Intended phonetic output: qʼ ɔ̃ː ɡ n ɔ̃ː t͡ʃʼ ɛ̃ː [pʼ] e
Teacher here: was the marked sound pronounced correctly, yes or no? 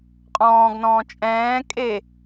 no